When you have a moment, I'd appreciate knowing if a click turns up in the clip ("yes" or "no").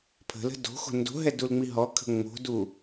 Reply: no